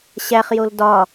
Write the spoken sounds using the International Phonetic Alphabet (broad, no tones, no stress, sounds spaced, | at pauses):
ɕ æ χ j o l d ɒ